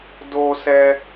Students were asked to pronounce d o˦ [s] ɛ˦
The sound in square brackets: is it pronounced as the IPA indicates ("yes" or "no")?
yes